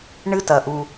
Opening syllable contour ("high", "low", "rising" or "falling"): high